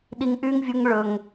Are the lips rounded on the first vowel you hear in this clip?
no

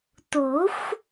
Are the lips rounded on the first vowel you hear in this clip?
yes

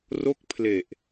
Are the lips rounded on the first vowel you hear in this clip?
yes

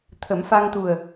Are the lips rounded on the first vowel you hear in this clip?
no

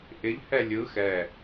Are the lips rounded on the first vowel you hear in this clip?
no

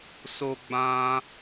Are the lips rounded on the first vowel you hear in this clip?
yes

